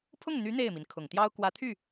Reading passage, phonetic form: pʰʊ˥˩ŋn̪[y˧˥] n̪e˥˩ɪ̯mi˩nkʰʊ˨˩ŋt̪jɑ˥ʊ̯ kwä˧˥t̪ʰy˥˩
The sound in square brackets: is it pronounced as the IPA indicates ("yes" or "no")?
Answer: yes